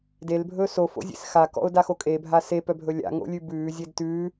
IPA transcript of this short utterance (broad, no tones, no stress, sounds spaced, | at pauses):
d e l bʱ ɵː s o f o̰ zʲ ḛ s x a k ɔ̰ ʊ̯ d a x o kʼ e bʱ a s e p œ bʱ ɵ lʲ a̰ ŋ o̰ lʲ ʉ b ʉː zʲ e d t ʉː